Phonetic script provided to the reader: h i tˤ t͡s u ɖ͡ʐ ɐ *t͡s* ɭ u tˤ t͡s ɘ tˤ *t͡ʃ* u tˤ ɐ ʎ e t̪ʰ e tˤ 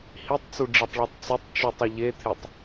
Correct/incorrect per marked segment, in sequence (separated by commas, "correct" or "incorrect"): incorrect, correct